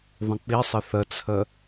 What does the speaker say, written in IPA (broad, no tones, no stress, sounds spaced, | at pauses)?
ðˤ ə̃ k͡p i sˤ ə θ ə t͡sʰ ə